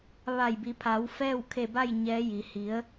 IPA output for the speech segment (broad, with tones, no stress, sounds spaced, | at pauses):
ʋ a˧˩ j b i˩˧ pʰ a˩˧ w f ɛː˥˨ w kʰ e˧˩ b a˥˨ j ɲ ɛː˧˥ j i˩˧ h i˩˧ ə̯